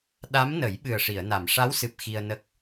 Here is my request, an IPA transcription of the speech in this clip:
ɗ a˧˥ m n ə˨˩˦ j ɓ ɨ˨˩ ə̯ ʂ i˨˩˨ ə̯ n a˨˩˨ m ʂ a˧˥ w s ɨ˨˩ p̚ x i˧ ə̯ n ə˦˥ k̚

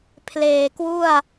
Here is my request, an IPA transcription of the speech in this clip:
pʰ l eː˨˩ k w u˥˩ a̯

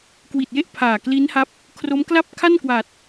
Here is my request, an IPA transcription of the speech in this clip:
k w i˨˩ t̚ j e˥˩ ʔ pʰ aː˨˩ k l i˦˥ n h a˦˥ p̚ | kʰ r o˦˥ m k l a˥˩ p̚ kʰ a˥˩ n k w a˨˩ t̚

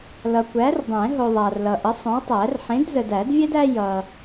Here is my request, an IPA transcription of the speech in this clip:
l ʌ˨ kʷ æ˨˥ r dˤ ɛ̃˨˩˦ ɦ o˨ ðˤ a˨ r l ʌ˨ ʔ ə˨˥ sˤ õ˨˥ w tˤ æ˨˩˦ r ħ ẽ˨˥ d z ə˨ d æ˨˩˦ d vʲ ɛ˥ d æ˥ j ʌ˨

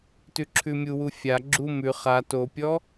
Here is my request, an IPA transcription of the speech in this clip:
t ʉ ǁʰ ʉ mʲ u w u fʲ a ɡ͡ǁ u m ʉ χ a t o pʲ ɔ

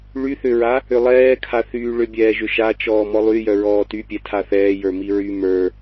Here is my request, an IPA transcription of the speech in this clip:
ɭ y θ ʏ ɹ a | ʏ lˠ ɛː kʰ a θ yː ɭ ʏ bʲ ɛː ʒ ʏ ʃ a t͡ʃ ɔː m ɔ lˠ y j œ ɹ ɔː t y pʲ ɛ tʰ a θ ɛː j ə˞ m i ɹ y m ə˞

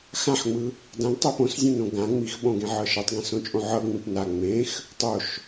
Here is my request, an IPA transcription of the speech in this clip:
x ã ħ ŋ͡m ɯ | d ã ɡ tˤ i p õ s zʲ õ n õ ɡ ã ŋ͡m i x ɓ õ ɡ ẽ ʕ ɤ ʃ ɤ tˤ ɡ ĩ s õ t͡ʃʼ õ ʕ ɤ ŋ͡m ẽ p n a ŋ͡m ẽ x | tˤ o ʃ

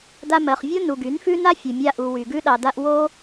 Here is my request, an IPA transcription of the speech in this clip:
d a˧ m ɜ˨ χ vʲ o˦ n u˧ ɡ y˨˦ n f ʉ˦ n a˦ fʲ ʉ˨ mʲ a˧ ʔ u˨ w y˨ ɡ ʉ˧ ɗ ɑ˨ d a˧ ʔ w o˦

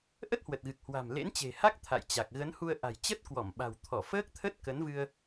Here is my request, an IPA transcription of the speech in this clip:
ʔ ə˦˥ t̚ h w ə˨˩ t̚ ɣ ɨ˨˩ k̚ h w a̤˨˩ m l ḛ˧˥ n t͡ɕ e̤˨˩ h a˦˥ k̚ t̪ʰ a̰˧˨ j t͡ɕ a˨˩ k̚ ɣ ə˨˦ n h u˧ ə̯ ʔ a̤˨˩ j t͡ɕ ə˦˥ t̚ k w ɔ˧˩ m ɓ a̤˨˩ w t̪ʰ ɔ˧˩ f əː˦˥ k̚ t̪ʰ ə˦˥ t̚ k ə˨˦ n v ɨ˧ ə̯

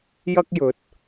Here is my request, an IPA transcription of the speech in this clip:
j ɐ˥ k̚ j ɵ˨˥ t̚

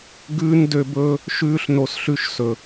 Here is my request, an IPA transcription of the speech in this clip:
ɡ ʉː˥ n d ø˦ b ɵː˥ | ʃ ʉː˥ ɬ n o˦ s ɬ ʉ˥ ʃ s ɵ˥

